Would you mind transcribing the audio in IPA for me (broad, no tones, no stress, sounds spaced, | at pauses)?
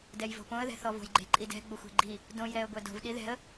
d ɛ j v o̤ p õ ə̯ ð ɛ̤ θ ɔ v o̤ j ɡ͡ǃ e̤ ǃʼ i d ɛ̤ ɡ͡b o xʷ e̤ ɡ͡ǃ i | d õ j ɾ ɛ ə̯ ɡʷ ɛ d o̤ v ɗ i ð ɛ̤ ə̯